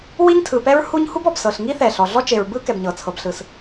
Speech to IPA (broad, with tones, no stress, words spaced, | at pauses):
wi˥ɲtʰɯ˩pɛ˥ɹhu˥ɲ hu˥bɔ˩bsɤ˩ɬŋi˥ θɛ˩ɬɔ˩ ɮɔ˥t͡ʃe˩ɹbɯ˥ kɛ˩bɲɤ˩t͡sʰɤ˩bɬɯ˩s